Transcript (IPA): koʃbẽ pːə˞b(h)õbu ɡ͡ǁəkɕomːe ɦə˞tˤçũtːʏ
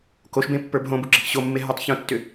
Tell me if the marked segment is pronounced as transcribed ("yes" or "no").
no